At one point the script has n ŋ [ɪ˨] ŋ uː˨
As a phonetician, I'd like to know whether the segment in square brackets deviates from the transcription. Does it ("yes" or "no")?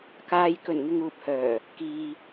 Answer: no